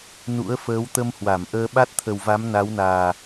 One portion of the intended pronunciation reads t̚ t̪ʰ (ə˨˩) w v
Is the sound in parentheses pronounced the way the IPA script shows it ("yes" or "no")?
yes